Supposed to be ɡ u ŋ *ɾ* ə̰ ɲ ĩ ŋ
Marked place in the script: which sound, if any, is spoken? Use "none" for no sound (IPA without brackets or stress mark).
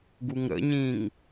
ɾ